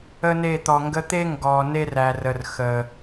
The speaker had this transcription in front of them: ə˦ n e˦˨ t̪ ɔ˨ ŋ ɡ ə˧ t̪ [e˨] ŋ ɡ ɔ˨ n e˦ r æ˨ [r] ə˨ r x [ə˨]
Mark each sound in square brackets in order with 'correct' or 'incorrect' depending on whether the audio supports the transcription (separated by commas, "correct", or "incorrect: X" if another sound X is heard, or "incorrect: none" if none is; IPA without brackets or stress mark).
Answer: incorrect: e˦, correct, correct